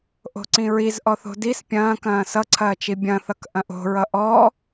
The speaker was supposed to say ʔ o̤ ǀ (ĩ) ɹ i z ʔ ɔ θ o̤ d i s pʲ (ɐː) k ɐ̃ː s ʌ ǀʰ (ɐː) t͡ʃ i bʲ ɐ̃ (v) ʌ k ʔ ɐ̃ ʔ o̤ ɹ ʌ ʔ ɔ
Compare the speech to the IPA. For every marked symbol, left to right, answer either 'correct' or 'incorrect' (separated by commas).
correct, incorrect, correct, incorrect